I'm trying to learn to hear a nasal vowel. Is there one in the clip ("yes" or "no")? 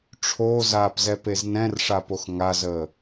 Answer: yes